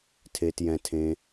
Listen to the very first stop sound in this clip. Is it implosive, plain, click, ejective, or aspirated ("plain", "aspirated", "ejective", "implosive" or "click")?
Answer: aspirated